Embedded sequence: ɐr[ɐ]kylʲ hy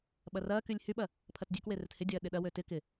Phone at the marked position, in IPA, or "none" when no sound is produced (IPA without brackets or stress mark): ɐː